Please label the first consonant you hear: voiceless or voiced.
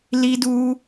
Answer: voiced